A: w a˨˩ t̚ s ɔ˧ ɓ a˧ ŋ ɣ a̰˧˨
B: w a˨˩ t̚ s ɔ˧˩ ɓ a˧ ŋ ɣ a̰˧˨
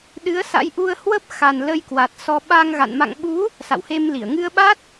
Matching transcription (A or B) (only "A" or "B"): A